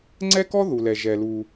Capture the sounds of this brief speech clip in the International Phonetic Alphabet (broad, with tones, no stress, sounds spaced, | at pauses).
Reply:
ŋ͡ǀ ɛ˥ k ɔ˥ ð u˩ l ɛ˩ ʒ ɛ˩ l u˩